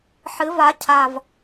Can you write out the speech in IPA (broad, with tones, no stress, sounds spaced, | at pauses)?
ħ ɨ˨˥ v a˨˥ cʰ a˨˩ v